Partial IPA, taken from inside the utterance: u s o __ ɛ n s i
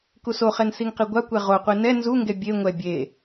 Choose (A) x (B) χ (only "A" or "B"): B